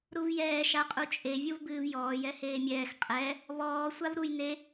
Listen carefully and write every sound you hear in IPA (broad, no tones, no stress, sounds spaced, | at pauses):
ɾ u v j ɛː ʃ a qʼ u t͡ʃʼ e vʲ u v b ɨː v j ɔː j ɛ h eː mʲ ɛː x qʼ ɛ | β ɔː sʷ a v ɾ u j n e